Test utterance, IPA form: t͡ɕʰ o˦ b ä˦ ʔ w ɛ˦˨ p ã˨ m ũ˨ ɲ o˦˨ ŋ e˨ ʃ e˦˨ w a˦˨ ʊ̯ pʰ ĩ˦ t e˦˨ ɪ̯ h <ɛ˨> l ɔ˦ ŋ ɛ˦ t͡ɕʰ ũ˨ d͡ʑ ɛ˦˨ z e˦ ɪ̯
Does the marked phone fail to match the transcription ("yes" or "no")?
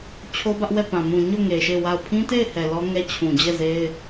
no